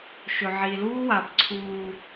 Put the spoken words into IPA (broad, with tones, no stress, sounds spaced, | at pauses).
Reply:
ʃ ɵ˨ ʕ i˨ l uː˦ w a˨ b ǀʰ uː˨